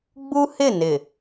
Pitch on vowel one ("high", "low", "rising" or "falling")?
high